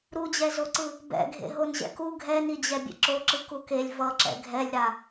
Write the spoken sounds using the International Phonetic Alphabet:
ɾud͡ʑɛzoǀɯ | bɛ̰ɡʱḛ ɦonʑɛ̰ku ɡʱɛnid͡ʑɛ bʲḛǁoǁɯ kukelʲ vʌǁɛ̰ ɡʱɛlʲɾa

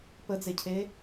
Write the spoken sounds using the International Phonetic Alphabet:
pəd͡zecʰe

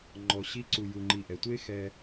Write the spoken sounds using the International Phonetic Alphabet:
ŋ͡ǃɔ˨ɕi˦ǀu˨ ju˨ŋ͡ǃi˨ʔɛ˩tʷe˥ xɛ˦

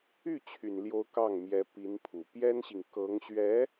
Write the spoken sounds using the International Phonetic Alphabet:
y˥˩ t͡ɕʰy˨˩nljo˧˥ʊ̯ kɑ˥˩ŋmjɛ˧˥ pi˧˥npʰu˨˩ pjɛ˥nɕi˨ŋ kɤ˧˥ŋɕɥɛ˧˥

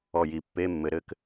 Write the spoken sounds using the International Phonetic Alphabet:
ɔ˧˩ji˨˩˦ pːe˧˥˧mːɘ˨˩˦ ɾɘ˧˥k

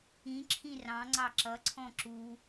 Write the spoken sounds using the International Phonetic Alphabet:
ĩǁʰĩ rɑ̃ŋ͡ǀɑ ǁʌǀʰɔ̃ ǁu

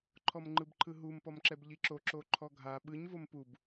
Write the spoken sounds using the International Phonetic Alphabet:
ǃʰɔmŋ͡ǃɯbǃʰɯɦum pɔmǁɛbʎiǁo ǁoǃʰɔɡʱa ɓɯɲ vompub

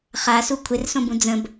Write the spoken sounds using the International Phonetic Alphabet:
χasu kʷʰɪrsõbũ d͡zə̃b

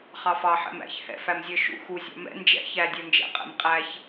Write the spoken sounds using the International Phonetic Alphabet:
χɑfɑ ħɛ̰mæ̰ç hɛ̰ fæmzʲə˞ʃṵ xu zʲɑ̰mɛ̰ nd͡ʒɛ̰ çæ dʲə˞nd͡ʒɛ̰ qʼɛ̰mqʼæç

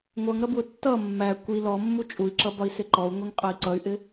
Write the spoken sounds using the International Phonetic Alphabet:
ŋʷʌŋɾʌ bwʊtːʌ mːæ kʷi lɔmːu t͡ʃʼui̯ǁʌbɒi̯ sɪǃɔu̯ŋʷiŋ qʼʌi̯ǀʌy̯ʔɪ

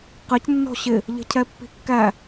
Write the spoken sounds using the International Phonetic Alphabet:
qɪc nːɔ̤ɕɪ | ʎə̤cʰɛpːi̤kːæ

